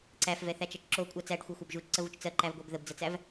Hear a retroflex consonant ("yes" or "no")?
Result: yes